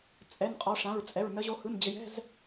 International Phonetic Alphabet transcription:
t͡sʼ ɛ˧˥˧ n qʼ ɔ˦˥ ʂ ã˧˥˧ ɹ t͡sʼ ɛ˧˥˧ ɹ n ə˦˥ ʑ o˦˥ h ɯ˧˥˧ n d͡ʑ ɘ˧ j ɛ̤˧˥˧ z

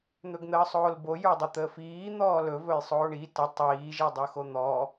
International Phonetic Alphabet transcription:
n̪ ɵ ɡ n̪ əː sˤ oː l b o j ə˞ dˤ ə t̪ əː f iː n̪ ɔː l ɵ v ɵ j sˤ oː ɳ i t ə tˤ iː ʒ i dˤ o x o n̪ ɔ

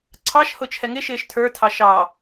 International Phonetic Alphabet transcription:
ǀʰ ɑ ʃ h ʊ t͡ʃʰ ɛ ŋ ɪ ʃ ɪː ʃ tʰ ə˞ tʰ ɑ ʃ ɑ

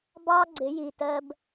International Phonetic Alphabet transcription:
b ɑ˦ ɡ͡ǀ ɪ˨˦ j i˨ t ɜ˦ b

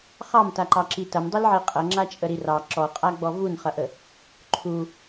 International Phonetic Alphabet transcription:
χ ɑ m t a ǃ ɑ ǁ i t ɐ m dˤ i l ʕ e qʼ ɐ ŋ͡ǁ a t͡ʃʼ ə ɾ i r ɑ ǁ ɔ qʼ a ɡ͡b ɔ v u n χ ɐ ʔ ə | ǃʰ u

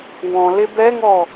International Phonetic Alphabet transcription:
w ɔ̃ l ɪ b ɛ ŋ ɔ

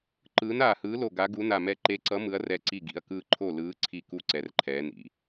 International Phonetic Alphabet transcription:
ǃ ɯː˨˦ n aː˧˩ h ɯː˨˦ l o˧˩ ɡ a˨˦ ɡ u˨˦ n a˧˩ m ɛ˧˩ ǃ e˨˦ ǀ ʌ˨˦ m ɯ˨˦ ɐ̯ r ɛ˧˩ ǀ i˧˩ ɡ ḭ˧˩ ɐ̯ k ɯː˧˩ ǃʰ o˧˩ l ɯː˨˦ ǀʰ i˧˩ k u˧˩ ǀ ɛ˨˦ r ǃʰ ɛː˨˦ n ḭ˨˦

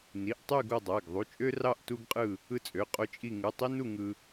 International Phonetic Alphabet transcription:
n i˩˧˩ ʔ tˤ y˦˨ ɡ o˦˨ dˤ æ˩˧˩ ɡ ðˤ u˩˧˩ t͡ʃʼ ø˦ r ɑ˦˨ ʔ t u˦ ɡ qʼ ɯ˦˨ | ɯ˦˨ t͡sʼ ø˩˧˩ qʼ o˦ t͡ʃʼ i˦˨ ŋ ɯ˩˧˩ tˤ i˦ n u˦˨ ŋ ɯ˦

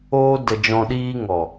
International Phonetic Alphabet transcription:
oː˧ d ə˨ d͡ʒ ɔ̃˨ ɗ iː˧ ŋ ɔ˨

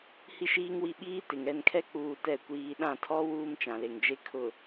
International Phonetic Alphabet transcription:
h i˦ ʃ iː˦ ŋ w i˦˨ ɓ iː˦ t ɪ˨ ŋ ɛ˦˨ n kʰ ɛ˦ k͡p uː˦ t ɛ˦˨ kʷ iː˨ ɗ ã˦˨ tʰ ɔ˦ w uː˦ m t͡ʃ ã˨ l e˨ ŋ d͡ʒ e˦ kʰ ʊ˨

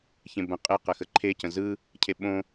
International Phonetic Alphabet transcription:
ç ẽ b ə̃ qʼ ɪ q ə x ə ǃʰ e c ə̃ z ɯ | cʰ e ɓ õ

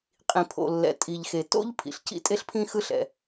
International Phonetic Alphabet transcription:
qʼ ĩ˩ pʰ o̰˩ lː ɛ̰˩ tʼ i˩ ʎ x e˩ t o̰˥ ʎ pʰ ḭ˩ ɬ c ḭ˥ tʼ e˥ ɬ pʰ ĩ˥ x ɯ˥ ɬ ɛ̰˩

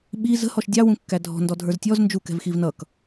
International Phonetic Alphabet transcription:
ɓ i z ə̤ h ɔ ʃ dʲ ɑ w ũ kː æ dʱ ɔ̤ n d ɔ dʱ ə˞ z tʲ ɔ z n d͡ʒ u k ɛ̤ v x i v n ʌ k

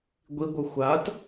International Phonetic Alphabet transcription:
ɡʷ i ɡʷ ɯ xʷ a t

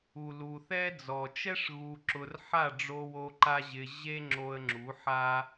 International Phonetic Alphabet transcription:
u˨ l u˨ θ ɛ˦ d͡z ɔ˨ t͡ʃ ɛ˦ ʂ ɣ u˧ ǁ ʊ˧ r ħ a˦˨ ɖ͡ʐ o˧ w o˧ ǃ a˦ ʑ ɪ˧ ʑ e˦ ŋ͡ǁ o˧ ə̯ ŋ͡ǁ u˨˦ ħ a˦

